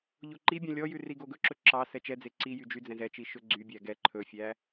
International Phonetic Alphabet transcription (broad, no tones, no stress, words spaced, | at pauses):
ʎoǃibʲɛ̃ lʲɔjʉ riɡoɡɵǁɵ ǁɑ sɛt͡ʃɛd͡ze ǀijy d͡ʒy d͡zɛ̃zɛt͡ʃi ʃɵɡ͡ǀybʲæ ɡɛ ǃʰɵfʲæ